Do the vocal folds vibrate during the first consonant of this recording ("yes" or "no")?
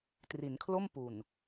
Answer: no